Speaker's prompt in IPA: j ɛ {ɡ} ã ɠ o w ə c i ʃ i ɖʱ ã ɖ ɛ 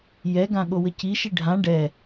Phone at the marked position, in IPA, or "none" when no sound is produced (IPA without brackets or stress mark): ɡ